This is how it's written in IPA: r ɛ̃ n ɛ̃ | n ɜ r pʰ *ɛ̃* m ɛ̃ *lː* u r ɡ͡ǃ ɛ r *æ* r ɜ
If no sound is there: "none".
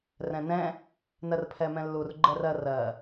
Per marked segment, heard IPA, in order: ɛ, lː, ɜ

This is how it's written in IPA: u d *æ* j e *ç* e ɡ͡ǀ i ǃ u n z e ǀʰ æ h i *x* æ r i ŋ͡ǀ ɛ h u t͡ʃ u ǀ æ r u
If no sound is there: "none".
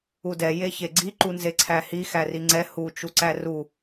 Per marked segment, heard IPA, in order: ɛ, ç, x

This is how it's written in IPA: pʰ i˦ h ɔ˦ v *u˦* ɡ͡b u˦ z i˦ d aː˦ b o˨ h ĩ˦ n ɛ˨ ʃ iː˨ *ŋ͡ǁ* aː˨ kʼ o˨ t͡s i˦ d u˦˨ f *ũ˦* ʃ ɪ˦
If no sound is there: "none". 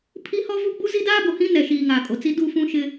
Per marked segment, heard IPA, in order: u˦, ŋ, ũ˦

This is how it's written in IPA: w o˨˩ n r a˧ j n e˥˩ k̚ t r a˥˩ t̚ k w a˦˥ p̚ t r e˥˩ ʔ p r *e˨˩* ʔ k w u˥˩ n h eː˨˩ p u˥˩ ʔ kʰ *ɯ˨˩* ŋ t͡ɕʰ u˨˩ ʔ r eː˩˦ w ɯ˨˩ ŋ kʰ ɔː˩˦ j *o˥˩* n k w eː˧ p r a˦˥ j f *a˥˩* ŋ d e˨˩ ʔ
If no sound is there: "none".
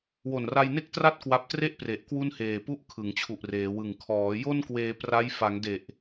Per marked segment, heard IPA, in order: e˨˩, ɯ˩˦, o˥˩, a˩˦

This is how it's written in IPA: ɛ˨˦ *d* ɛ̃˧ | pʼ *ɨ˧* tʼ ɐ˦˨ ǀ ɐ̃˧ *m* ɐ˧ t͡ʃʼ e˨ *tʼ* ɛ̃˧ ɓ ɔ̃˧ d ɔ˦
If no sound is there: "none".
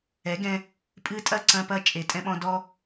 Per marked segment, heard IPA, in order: ɡ, ɨ˧, p, tʼ

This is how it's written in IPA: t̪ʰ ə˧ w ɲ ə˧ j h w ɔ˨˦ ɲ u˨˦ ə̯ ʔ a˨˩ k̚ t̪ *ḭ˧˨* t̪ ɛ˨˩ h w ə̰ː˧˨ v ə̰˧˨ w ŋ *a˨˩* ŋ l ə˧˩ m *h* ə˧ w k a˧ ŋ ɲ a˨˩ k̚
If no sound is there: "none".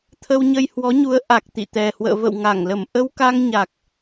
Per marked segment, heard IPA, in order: ḭ˧˨, a˧˩, ʔ

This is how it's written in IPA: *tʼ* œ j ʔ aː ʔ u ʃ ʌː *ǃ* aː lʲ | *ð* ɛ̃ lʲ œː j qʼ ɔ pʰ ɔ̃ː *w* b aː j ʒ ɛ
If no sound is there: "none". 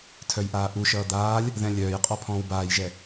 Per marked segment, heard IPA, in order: tʰ, d̪, ð, w

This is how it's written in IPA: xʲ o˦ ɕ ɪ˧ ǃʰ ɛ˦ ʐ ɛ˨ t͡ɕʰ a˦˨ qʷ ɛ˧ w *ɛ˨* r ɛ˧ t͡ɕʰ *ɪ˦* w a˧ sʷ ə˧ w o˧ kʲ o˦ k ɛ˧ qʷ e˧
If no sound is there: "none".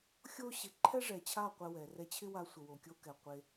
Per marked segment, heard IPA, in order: ɛ˨, ɪ˦

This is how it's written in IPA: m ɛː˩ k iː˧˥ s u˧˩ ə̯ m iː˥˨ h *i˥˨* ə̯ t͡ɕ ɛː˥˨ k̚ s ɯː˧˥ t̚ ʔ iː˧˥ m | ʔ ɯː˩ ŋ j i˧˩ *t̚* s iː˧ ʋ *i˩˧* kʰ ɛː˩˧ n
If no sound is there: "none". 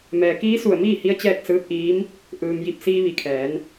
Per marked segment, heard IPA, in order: i˧, p̚, i˧˩

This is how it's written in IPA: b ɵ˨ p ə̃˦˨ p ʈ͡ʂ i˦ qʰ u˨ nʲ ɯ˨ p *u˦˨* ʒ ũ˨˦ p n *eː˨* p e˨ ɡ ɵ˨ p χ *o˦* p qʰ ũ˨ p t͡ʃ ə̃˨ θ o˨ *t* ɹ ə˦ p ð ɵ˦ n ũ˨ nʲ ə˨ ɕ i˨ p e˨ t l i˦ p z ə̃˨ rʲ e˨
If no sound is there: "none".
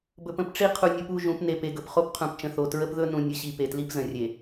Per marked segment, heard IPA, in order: u˦˨, e˨, o˦, t

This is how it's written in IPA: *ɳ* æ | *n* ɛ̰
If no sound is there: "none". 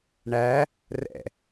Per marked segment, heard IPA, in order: ɳ, r

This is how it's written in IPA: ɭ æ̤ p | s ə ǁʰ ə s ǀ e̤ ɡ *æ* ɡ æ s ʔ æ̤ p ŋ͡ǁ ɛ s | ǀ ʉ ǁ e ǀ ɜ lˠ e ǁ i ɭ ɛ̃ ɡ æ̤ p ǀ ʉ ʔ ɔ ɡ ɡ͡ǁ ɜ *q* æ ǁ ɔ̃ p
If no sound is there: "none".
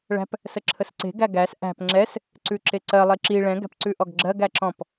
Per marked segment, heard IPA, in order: æ, ɡ

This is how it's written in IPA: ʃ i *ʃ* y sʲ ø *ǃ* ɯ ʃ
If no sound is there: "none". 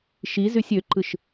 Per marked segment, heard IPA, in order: z, ǃ

